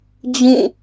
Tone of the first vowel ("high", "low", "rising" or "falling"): falling